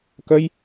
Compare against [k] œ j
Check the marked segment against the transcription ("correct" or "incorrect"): correct